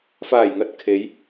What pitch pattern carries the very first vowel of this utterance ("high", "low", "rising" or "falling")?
low